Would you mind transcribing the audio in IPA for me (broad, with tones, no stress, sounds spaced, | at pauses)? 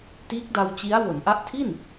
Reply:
t iː˦˥ k̚ d a˧ w t͡ɕ i˦˥ a̯ w o˩˦ n ʔ a˦˥ ʔ tʰ i˥˩ n